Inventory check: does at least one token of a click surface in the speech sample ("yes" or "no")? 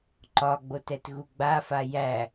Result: yes